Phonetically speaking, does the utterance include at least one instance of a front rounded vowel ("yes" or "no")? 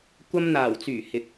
yes